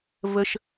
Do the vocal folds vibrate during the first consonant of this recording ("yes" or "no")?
yes